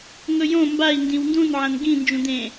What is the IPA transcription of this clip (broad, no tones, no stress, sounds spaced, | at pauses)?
ŋ ɵ j õ m b a i̯ n d ĩ w n d ũ n ʕ ɐ̃ n ɡ ĩ n d͡ʒ ũ d̪ ẽ